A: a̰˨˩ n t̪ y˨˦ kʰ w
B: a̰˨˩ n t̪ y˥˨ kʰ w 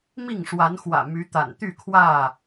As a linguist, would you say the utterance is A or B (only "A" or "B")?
B